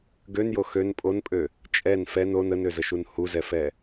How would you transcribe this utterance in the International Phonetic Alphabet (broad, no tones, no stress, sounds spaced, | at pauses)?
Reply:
ɡ ø n j o x ø n pʼ o n pʼ ø | t͡ʃʼ ɛ n f ɛ n o n ə n ø z ə ʃ u n h u z ɛ f ɛ